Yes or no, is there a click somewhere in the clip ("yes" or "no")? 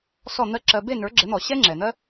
yes